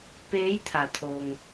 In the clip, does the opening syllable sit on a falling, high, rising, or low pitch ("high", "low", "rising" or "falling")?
rising